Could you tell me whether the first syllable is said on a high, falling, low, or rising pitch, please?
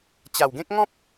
low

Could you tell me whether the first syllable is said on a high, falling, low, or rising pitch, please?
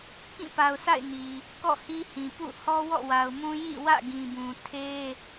falling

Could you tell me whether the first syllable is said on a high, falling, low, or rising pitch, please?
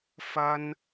high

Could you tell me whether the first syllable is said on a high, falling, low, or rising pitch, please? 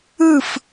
falling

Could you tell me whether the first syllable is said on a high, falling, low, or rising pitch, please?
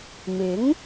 rising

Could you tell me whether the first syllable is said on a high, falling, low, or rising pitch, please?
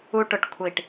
high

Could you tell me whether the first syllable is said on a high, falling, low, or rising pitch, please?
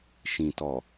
low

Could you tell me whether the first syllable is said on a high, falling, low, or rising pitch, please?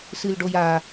low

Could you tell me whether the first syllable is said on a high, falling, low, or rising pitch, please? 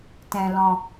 low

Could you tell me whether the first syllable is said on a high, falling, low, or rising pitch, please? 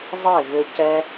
falling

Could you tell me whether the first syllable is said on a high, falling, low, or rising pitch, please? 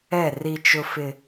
falling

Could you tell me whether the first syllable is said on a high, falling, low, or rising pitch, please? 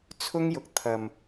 high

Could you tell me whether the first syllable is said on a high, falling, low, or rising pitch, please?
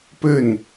falling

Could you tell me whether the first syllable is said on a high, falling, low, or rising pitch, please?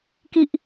low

